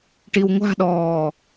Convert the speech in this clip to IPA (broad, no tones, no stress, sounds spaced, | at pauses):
ʈ i w ŋʷ a̤ ɗ ɔː